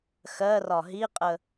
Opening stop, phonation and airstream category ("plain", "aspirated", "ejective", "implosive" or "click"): ejective